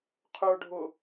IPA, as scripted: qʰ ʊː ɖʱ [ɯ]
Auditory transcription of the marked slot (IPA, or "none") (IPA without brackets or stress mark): ʊ